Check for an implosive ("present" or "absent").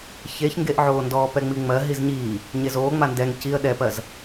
present